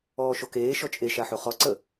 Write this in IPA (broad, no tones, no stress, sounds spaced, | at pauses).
ɔː ʃ o k eː ʃ ɔ t͡ʃʼ e ʃ a ħ o χ ɔ ǀ ə